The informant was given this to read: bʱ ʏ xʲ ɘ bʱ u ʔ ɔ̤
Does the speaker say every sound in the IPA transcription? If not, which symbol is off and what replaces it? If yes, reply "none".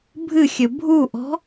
ʏ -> ɨ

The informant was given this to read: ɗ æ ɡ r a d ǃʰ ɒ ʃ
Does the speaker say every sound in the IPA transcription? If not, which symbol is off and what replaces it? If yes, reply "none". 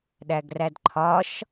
a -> æ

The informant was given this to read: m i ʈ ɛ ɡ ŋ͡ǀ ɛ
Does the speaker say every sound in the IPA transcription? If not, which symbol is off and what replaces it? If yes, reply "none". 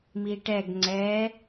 none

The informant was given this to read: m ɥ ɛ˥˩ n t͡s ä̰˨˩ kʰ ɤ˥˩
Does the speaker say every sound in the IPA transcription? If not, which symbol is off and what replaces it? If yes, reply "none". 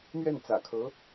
ɤ˥˩ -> ɤ˧˥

